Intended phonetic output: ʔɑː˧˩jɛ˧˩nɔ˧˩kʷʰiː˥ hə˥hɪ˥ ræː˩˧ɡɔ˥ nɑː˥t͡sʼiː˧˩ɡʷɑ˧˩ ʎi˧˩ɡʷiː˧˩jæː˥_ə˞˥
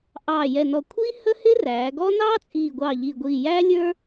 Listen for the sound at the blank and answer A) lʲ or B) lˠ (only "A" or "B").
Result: A